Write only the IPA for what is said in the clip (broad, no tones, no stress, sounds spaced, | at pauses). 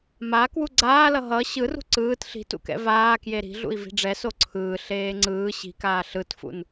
m a k w u ɡ͡ǀ aː l ʌ ɦ ʌ ɕ ɯ r ṳ ǀ ɯː t ɬ i̤ t ṵ k ɛ̰ v aː k j e ɾ i̤ ɮ ṵ i̯ v i̤ ɖ͡ʐ ɛ s o ǀʰ ɯː ɬ eː ŋ͡ǀ ɯː ɕ i̤ k aː ɬ ɯ t f ṵ n